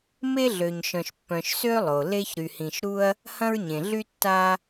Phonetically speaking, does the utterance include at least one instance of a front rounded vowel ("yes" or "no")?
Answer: yes